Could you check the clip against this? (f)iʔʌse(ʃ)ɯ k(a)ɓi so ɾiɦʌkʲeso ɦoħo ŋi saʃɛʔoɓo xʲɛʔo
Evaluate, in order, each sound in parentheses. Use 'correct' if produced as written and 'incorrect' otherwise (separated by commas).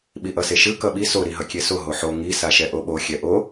incorrect, correct, incorrect